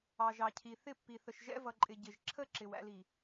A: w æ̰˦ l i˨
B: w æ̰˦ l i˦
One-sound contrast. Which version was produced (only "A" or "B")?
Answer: A